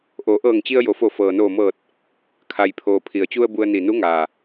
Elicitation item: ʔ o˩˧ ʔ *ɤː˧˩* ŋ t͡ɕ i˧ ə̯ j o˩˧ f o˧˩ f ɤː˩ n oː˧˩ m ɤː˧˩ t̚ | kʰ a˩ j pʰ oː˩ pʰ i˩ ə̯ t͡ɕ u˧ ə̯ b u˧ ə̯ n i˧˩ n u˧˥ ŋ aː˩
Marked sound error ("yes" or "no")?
no